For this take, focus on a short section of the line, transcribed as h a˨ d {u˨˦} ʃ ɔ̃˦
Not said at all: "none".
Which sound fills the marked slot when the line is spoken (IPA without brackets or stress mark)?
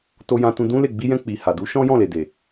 u˨˦